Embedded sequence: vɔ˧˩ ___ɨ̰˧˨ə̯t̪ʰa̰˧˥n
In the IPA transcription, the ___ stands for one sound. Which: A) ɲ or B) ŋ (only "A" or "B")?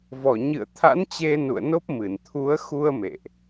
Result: A